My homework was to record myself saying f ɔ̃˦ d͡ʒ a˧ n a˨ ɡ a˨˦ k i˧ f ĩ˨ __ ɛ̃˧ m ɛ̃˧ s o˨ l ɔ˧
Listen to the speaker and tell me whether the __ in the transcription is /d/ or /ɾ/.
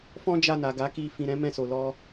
ɾ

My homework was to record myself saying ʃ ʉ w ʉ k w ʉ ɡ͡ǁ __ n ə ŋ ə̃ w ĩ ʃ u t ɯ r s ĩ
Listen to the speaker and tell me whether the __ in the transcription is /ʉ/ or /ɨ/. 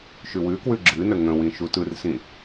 ɨ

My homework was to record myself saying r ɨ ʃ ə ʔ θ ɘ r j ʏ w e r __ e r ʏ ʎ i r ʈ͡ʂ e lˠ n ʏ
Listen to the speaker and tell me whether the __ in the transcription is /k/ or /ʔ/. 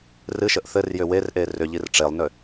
ʔ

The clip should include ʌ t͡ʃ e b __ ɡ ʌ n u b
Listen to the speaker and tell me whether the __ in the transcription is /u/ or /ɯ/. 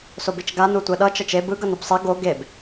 ɯ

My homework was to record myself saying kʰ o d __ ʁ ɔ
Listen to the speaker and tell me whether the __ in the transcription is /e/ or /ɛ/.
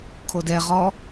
ɛ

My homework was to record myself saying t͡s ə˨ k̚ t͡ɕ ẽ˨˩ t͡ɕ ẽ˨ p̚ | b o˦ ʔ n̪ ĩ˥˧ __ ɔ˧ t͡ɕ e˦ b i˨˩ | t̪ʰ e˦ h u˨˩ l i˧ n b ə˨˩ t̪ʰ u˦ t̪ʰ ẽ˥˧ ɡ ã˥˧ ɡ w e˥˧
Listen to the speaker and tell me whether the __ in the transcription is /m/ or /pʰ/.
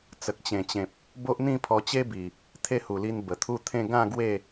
pʰ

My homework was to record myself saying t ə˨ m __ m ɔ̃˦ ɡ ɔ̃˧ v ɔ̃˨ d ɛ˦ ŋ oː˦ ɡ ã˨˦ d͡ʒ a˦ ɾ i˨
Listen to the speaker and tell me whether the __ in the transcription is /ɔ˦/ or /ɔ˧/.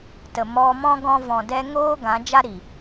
ɔ˧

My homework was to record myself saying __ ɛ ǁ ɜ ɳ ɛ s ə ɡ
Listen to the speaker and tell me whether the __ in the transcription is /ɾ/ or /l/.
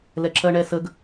l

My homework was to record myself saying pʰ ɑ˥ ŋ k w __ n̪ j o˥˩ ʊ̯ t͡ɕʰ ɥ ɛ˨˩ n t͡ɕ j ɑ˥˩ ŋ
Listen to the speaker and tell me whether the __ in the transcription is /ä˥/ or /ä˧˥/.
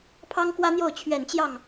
ä˥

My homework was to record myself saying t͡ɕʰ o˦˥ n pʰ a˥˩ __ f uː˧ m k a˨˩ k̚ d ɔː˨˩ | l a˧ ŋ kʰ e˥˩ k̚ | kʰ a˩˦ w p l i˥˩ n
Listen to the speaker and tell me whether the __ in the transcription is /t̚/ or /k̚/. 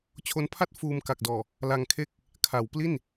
t̚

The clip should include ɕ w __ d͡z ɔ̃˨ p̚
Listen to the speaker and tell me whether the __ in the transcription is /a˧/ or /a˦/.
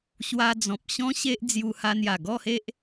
a˧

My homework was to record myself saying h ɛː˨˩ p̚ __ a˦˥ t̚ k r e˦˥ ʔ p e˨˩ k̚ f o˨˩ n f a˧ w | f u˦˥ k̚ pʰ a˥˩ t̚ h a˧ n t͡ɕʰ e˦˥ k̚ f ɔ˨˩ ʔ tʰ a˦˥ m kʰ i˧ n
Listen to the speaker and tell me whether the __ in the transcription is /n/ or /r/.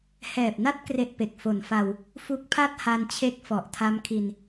n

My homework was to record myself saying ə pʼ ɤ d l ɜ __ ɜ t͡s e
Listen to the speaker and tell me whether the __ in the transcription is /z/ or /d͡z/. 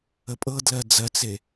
d͡z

